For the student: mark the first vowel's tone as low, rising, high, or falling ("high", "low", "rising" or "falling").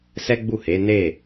high